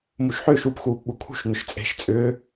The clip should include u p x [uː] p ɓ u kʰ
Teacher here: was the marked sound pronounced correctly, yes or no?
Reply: yes